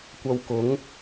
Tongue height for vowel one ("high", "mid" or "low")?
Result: low